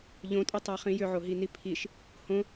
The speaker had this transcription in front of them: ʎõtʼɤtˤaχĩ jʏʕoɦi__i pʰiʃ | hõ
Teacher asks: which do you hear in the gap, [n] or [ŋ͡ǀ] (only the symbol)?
n